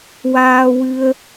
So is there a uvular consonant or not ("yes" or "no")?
no